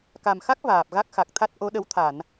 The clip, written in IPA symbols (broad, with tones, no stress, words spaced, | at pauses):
ka˨˩mxa˦˥k̚ vaː˨˩p̚ɣa˦˥k̚xa˨˩k̚t̪ʰa˦˥t̚ ʔo˨˦ɗə˨˦w t̪ʰa˧˩˨n